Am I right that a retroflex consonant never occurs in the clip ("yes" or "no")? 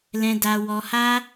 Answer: yes